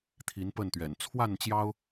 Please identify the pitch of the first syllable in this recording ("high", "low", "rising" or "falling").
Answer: rising